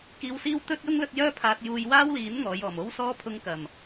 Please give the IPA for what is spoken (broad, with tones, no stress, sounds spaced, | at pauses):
k iː˧ w s iː˥ w t̪ ɵ˥ t̚ j ʊ˥ ŋ l ɵ˧ t̚ j œː˥ pʰ aː˧ t̚ j uː˧ j w aː˥ w l iː˨˥ n ŋ ɔː˨˧ j ɔː˨˩ m o˥ w s ɔː˥ pʰ ʊ˧ ŋ k ɐ˨˩ m